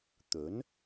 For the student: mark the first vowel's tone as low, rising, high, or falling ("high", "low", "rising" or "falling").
rising